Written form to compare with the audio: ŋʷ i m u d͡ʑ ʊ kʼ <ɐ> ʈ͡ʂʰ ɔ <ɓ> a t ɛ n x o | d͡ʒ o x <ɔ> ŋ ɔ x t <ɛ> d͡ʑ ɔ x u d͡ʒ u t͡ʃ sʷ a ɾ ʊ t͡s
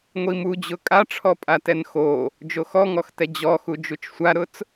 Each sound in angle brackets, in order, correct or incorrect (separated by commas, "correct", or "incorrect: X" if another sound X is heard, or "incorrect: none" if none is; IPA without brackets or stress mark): incorrect: a, incorrect: pʼ, correct, correct